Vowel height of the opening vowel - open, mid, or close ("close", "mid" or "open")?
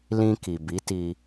close